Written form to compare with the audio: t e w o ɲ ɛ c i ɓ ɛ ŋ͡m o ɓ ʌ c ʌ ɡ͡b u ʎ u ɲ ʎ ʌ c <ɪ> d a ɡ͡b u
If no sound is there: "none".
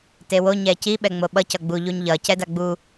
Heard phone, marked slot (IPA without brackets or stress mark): ɛ